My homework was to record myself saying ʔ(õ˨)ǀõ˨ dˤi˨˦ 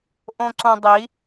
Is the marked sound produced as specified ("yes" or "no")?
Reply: yes